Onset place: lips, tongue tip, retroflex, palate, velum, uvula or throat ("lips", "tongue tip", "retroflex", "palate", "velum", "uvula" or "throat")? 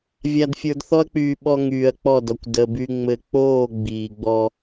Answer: lips